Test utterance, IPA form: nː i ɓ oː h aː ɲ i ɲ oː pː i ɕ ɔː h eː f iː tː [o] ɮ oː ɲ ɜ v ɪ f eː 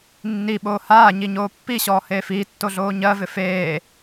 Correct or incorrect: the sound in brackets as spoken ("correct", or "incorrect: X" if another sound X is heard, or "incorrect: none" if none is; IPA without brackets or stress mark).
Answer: correct